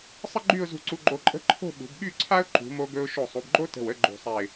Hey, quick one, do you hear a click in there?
yes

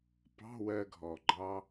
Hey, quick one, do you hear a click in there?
yes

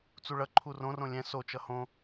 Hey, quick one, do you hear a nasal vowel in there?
yes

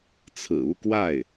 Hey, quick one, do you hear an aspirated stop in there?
yes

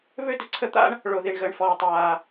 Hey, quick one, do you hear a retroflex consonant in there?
yes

